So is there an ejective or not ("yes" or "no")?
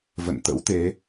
no